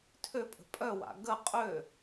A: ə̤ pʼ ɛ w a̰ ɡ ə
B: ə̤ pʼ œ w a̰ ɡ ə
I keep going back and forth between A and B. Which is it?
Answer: B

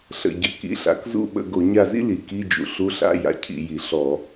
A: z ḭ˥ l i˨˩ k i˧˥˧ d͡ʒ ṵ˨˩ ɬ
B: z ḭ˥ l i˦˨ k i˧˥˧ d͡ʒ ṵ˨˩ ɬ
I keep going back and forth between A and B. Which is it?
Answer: A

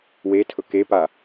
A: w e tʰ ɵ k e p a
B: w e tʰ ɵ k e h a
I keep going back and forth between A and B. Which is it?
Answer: A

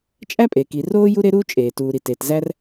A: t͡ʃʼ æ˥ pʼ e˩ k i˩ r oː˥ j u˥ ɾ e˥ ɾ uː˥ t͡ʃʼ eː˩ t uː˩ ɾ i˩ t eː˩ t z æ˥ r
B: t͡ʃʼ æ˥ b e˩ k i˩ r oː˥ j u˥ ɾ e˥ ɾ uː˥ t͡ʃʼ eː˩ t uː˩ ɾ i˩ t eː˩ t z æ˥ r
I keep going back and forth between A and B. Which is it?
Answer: A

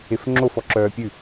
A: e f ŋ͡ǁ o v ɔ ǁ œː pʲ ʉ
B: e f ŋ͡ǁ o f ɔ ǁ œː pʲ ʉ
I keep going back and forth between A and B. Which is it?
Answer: B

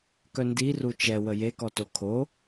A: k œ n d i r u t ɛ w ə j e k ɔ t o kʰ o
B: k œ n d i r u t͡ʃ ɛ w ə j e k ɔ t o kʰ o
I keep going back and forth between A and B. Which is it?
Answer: B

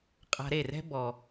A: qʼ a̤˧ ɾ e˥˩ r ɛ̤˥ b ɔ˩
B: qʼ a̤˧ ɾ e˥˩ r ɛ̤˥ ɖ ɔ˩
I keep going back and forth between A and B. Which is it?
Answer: A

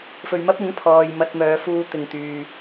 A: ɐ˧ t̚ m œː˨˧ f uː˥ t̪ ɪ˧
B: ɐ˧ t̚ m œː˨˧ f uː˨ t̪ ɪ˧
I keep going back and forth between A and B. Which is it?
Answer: B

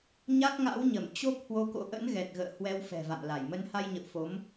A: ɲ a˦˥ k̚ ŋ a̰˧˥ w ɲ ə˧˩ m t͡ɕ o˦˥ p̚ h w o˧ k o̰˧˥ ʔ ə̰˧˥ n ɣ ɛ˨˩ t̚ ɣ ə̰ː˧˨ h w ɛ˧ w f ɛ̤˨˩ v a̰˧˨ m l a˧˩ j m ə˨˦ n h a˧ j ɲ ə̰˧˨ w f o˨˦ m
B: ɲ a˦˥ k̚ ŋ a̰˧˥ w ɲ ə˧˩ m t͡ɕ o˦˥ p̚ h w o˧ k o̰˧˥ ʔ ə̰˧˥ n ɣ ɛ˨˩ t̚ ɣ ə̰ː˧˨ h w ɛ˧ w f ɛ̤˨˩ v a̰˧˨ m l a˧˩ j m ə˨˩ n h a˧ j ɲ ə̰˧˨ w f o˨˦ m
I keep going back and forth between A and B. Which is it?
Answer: A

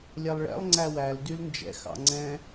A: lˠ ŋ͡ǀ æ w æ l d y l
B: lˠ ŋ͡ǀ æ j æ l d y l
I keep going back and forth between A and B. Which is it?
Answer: A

